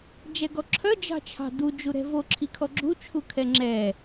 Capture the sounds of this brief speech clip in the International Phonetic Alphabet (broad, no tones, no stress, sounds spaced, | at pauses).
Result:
d͡ʒ ɛ ɡ ɔ ǁʰ œ d͡ʒ ɑ̤ t͡ʃʰ ɑ̤ d u d͡ʒ u ɾ ɛ̤ v o ǁʰ i kʰ ɔ ɡ͡ǁ u t͡ʃʰ u kʰ ɛ ŋ͡ǁ ɛ